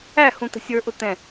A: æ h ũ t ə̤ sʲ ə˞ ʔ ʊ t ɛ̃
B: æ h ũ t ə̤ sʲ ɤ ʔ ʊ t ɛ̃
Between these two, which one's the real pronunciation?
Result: A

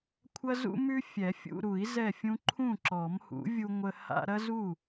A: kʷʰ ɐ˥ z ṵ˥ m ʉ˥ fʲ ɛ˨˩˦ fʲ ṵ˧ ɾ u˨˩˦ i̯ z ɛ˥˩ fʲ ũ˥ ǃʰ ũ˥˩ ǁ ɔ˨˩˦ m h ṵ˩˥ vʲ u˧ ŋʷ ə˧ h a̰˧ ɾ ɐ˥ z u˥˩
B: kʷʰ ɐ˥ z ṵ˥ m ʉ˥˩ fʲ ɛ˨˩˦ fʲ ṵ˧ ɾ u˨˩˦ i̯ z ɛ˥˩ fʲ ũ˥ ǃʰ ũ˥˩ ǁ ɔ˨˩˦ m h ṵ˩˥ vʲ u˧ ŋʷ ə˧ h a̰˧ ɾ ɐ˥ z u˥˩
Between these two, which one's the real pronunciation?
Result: A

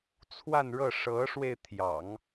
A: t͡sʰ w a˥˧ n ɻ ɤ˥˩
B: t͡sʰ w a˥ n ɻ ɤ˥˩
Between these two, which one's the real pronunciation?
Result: A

